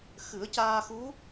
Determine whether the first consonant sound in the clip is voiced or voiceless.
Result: voiceless